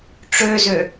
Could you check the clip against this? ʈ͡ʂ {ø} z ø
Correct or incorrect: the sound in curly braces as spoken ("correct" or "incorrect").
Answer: correct